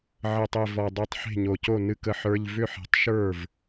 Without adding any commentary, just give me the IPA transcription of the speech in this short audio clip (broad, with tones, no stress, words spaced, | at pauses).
ʕə˨˩tˤe˨˩ vɔ˨˩ dˤa˥˩tˤ ħe̤˥˩ɲo˨˩co˥˩ nɨ˦˥k ə˧˥˧ħə˞˧˥˧ʎ vʏ˥˩ħi̤˨˩tˤʃə˞˥˩v